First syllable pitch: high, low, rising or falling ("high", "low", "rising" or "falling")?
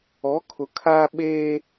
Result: rising